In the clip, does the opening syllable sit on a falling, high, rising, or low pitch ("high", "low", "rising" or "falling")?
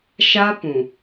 high